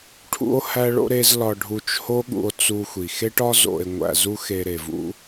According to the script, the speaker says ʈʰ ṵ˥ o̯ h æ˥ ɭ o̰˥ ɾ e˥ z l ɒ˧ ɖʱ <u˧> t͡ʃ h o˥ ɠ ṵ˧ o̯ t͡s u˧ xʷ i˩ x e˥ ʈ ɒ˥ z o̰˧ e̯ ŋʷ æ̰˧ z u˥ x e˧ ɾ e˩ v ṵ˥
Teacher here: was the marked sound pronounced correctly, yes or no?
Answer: yes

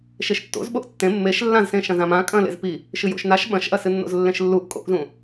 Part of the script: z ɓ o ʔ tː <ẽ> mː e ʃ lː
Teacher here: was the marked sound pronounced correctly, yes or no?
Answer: yes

